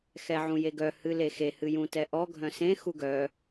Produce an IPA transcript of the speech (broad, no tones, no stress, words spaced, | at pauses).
xɛʕũjeɡœ hɨlexe hɨjũtɛʔɔ ɡʱœ̃sẽ xuɡœ